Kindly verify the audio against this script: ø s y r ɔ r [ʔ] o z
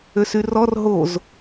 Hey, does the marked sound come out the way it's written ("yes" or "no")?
no